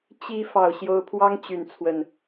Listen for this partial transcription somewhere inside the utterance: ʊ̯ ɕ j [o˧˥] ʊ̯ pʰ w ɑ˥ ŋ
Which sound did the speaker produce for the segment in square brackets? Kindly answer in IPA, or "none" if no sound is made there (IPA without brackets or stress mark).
o˧˥